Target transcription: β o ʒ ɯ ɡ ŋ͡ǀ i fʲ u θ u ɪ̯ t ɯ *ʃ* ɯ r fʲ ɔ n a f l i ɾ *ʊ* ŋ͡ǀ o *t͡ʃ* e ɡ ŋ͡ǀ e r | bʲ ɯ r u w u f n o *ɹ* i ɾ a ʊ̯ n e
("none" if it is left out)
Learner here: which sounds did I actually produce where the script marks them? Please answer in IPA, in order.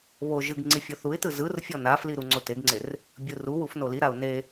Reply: z, u, t, l

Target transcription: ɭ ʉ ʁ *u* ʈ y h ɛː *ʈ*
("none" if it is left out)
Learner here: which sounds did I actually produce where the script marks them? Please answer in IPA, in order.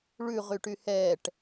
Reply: y, ʈ

